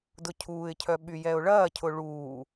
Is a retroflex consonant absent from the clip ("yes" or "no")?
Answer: no